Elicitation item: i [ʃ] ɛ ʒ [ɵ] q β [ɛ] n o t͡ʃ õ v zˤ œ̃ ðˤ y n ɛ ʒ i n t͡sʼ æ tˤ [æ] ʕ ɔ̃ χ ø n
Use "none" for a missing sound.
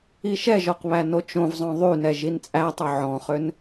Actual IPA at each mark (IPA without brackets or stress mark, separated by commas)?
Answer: ʃ, ɔ, æ, œ